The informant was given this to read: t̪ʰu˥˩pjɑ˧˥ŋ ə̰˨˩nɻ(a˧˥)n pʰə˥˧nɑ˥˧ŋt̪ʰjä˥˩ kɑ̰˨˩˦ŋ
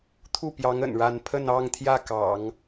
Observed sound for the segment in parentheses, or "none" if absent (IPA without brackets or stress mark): a˥˧